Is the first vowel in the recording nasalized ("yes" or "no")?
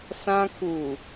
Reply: yes